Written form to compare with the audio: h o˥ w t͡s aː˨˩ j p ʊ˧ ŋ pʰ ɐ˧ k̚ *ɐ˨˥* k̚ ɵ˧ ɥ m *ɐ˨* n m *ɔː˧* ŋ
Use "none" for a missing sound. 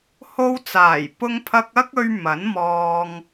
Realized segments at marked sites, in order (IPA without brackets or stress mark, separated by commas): ɐ˥, ɐ˨˥, ɔː˧